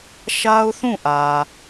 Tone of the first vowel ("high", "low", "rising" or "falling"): high